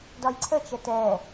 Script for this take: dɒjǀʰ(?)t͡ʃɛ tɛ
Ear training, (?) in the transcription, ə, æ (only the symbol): ə